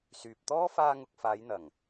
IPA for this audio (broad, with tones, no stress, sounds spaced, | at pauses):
s yː˨ p̚ t̪ ɔː˥ f aː˧ ŋ ʊ˨ k̚ f aː˨˧ j n̪ ɐ˨˩ ŋ